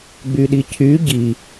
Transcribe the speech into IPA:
ɡ͡b y ɗ i cʰ y ɟ i

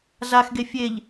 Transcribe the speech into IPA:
z a x ɡ e fʲ e ʎ

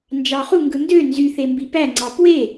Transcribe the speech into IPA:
n d͡ʒ ɑ χ u ŋ ɡ ɯ n d ø n z y θ e m b i p æ ŋ͡ǀ ɑ p w e

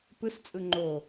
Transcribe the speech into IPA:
p ɯ s t͡sʼ ɯ ŋ͡ǃ o

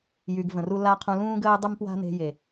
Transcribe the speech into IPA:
j y˨ ɡ v ə̃˨ r u˧ l a˦ qʰ ũ˧ l ũː˦ ɡ əː˦ j dˤ y˦ m p w a̤˦ n e̤˧ j e˨

